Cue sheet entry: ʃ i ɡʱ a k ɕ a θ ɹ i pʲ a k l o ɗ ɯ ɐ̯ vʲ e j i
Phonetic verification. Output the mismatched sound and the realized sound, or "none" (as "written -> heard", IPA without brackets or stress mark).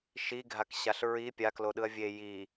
θ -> ɬ